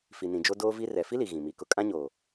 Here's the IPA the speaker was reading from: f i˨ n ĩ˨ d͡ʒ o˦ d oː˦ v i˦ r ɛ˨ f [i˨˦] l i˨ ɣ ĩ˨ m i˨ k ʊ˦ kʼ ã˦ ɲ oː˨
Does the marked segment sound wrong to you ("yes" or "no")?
yes